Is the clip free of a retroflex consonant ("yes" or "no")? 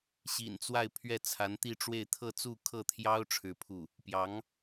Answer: no